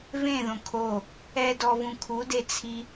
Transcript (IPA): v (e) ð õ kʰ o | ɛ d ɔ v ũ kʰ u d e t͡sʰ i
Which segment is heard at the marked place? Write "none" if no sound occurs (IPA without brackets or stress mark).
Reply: ẽ